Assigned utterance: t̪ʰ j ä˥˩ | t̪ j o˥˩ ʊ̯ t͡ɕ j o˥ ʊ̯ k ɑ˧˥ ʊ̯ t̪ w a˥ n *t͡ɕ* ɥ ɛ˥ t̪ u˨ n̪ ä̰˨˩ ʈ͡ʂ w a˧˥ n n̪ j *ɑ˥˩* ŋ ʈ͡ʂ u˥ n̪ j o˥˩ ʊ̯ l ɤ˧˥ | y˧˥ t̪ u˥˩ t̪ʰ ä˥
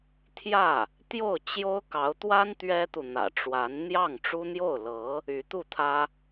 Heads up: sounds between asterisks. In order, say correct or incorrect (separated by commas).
incorrect, correct